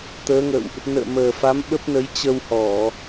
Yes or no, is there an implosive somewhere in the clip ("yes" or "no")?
yes